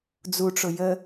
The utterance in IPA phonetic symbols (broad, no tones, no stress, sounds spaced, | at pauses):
d͡z u ʈ͡ʂ ʊ j ə